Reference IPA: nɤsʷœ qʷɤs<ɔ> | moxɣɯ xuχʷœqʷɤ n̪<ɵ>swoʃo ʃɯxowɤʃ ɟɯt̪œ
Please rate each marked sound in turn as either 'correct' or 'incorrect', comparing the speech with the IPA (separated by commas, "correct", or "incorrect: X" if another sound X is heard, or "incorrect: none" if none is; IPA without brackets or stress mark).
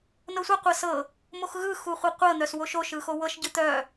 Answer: incorrect: ɤ, incorrect: œ